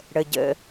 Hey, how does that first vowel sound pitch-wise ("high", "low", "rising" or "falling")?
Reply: low